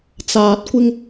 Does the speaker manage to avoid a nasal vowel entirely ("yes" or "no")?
yes